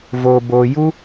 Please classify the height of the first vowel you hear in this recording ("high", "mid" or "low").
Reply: mid